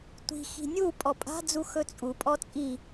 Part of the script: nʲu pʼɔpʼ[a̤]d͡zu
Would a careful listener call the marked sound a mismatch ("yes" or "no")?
no